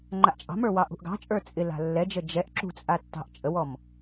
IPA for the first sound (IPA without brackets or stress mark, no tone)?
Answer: ŋ͡ǃ